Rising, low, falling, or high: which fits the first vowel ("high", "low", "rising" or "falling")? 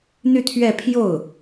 falling